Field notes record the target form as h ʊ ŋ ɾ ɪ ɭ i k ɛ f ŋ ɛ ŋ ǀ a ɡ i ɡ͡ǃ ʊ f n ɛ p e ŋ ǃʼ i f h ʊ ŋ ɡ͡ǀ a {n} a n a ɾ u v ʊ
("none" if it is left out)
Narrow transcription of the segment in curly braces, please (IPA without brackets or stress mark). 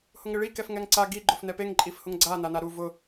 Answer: n